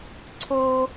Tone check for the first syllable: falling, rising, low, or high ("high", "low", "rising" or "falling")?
high